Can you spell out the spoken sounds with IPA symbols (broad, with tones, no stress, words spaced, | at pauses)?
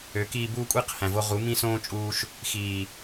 ø˨˦kiː˧ buː˦kʷʼi˦q hæ̃˨vo˧ʁu˨˦ mĩ˦sõː˦ t͡ʃʼuː˧ʃ | xiː˨